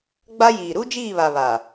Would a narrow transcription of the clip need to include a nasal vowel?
no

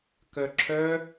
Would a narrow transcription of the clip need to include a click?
yes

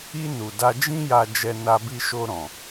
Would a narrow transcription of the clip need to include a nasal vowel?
yes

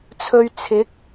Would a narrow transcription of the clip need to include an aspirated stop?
yes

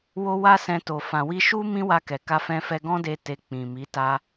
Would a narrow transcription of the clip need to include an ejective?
no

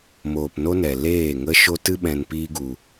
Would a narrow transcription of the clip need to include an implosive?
yes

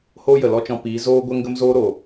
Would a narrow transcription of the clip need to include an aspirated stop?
no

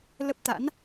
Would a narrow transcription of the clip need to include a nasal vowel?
no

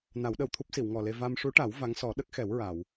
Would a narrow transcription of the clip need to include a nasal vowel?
no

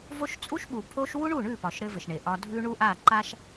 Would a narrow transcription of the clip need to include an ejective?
yes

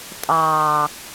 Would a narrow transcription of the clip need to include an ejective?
yes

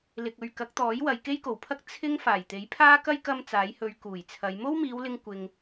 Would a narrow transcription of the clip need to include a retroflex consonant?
no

